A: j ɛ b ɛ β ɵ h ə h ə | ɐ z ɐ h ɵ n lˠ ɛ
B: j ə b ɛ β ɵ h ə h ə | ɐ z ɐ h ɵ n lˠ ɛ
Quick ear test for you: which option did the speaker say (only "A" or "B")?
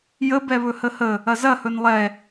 B